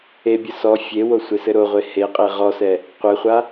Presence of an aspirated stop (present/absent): absent